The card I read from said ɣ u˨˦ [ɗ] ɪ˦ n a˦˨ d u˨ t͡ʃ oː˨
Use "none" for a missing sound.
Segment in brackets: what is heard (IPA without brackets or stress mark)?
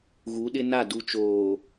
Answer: ɗ